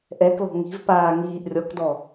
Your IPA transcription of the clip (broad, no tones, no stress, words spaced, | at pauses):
ʔɛklɔ̤ ŋi̤v paːŋiːʔ rʲɔkdɔ